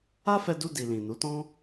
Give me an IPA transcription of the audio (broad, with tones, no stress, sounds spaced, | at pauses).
a˦ f ɛ˧ d u˧ d i˨ l ĩ˨ n u˨˦ t ɔ̃˦